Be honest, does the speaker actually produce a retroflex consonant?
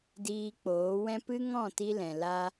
no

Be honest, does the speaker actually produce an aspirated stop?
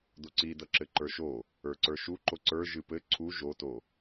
yes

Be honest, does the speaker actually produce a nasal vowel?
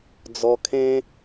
yes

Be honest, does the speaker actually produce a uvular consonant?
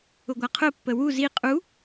yes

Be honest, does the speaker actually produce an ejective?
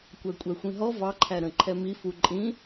yes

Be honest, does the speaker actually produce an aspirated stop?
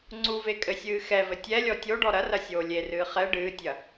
no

